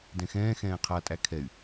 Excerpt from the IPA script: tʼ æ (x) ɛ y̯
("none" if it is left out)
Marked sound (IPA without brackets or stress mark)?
kʰ